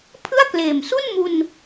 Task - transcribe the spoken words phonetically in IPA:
pʰ ɯ˥˩ a̯ k l eː˨˩ m s u˥˩ n m u˧ n

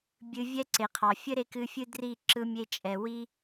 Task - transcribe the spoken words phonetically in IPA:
bʲ ɨ˧ vʲ ɛ˦ ǀ e˨ qʰ ɑ˨ fʲ ɘ˦ ɾ e˧ k ɨ˧ fʲ ɨ˦ d r i˦˨ ǁ ɯ˧ mʲ e˧ t͡ʃʼ ɛ˨ w i˦

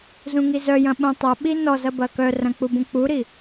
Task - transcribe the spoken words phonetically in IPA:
z ũ ŋ i z œ j ɐ̃ ɓ ũ tˤ ɐ ɓ i n ɔ z ɐ b ɐ k œ r ɐ̃ k͡p u b ũ k͡p u ɾ i

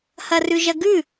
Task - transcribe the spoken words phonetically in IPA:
h ɐ r ʉ ʒ ɐ ɡ ʉ

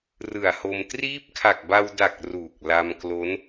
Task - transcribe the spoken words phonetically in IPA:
r ɯ˨˩ a̯ h o˧ m t r iː˦˥ p̚ kʰ a˨˩ k̚ b a˧ w d a˨˩ k̚ r u˨˩ k̚ l a˧ m k l o˦˥ n

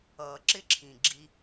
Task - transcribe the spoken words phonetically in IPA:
ʌː˨ ǁ ɪ˦ ǁʰ ĩ˨ ɡ͡ǁ i˧

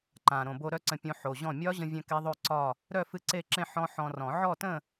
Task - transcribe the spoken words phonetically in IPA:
ǃ ã˨˩ ɾ õ˨˩ b o˧ ɾ œ˥˧ ǀ ə̃˧ pʲ õ˧ ħ o˨˩ ʑ ɔ̃˥˩ mʲ ɒ˦˥ ʑ ə̃˧ vʲ œ̃˧ k e˦˥ ðˤ o˥˧ ǀ ɒ˥˧ | ɾ œ˥˧ f ɨ˥˩ ǀ e˥˧ ǁ ẽ˥˧ ħ ɔ̃˦˥ ħ ɔ̃˧ r ɔ̃˨˩˦ ʕ ɔ˥˧ t ə̃˥˧

